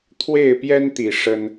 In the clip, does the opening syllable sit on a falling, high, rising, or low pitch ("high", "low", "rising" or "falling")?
falling